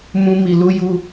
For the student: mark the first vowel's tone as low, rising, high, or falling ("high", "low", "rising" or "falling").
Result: high